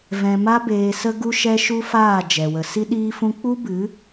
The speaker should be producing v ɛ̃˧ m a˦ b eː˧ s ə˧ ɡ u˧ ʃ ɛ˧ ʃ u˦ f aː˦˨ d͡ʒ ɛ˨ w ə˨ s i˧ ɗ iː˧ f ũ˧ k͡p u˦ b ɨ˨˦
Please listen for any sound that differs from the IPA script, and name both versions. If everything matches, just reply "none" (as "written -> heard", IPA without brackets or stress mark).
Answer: none